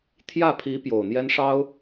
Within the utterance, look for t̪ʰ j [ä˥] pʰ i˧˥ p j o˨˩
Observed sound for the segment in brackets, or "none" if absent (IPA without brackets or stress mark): ä˥˩